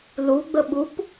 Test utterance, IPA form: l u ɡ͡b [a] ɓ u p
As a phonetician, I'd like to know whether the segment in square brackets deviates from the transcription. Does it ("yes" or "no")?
yes